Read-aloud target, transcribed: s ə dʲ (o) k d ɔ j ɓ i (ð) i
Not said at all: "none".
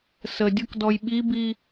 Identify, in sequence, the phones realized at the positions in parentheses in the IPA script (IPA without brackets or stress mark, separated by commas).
o, b